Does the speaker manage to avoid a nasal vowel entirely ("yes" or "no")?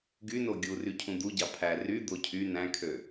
no